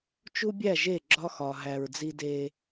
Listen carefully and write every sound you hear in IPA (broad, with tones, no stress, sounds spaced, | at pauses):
t͡ʃ u˦ bʲ æ˦˨ ʒ e˦˨ ɡ͡ǁ ɒ˦ x ɒ˨ ɦ æ˨ ɹ d͡z i˦ d e˦